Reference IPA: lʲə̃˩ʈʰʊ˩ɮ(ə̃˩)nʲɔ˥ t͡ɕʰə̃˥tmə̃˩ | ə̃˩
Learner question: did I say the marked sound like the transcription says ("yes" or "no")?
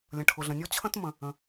yes